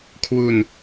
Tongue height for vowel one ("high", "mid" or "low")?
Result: high